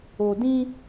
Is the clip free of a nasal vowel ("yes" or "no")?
no